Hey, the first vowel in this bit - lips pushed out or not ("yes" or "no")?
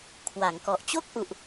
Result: no